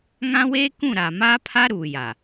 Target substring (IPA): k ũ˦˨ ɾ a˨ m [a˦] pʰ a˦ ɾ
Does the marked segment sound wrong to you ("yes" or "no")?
yes